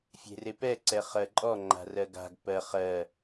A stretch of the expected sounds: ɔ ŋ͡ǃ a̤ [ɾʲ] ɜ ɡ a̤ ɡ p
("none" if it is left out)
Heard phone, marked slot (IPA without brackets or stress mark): r